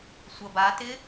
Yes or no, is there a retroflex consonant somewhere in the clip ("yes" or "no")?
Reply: no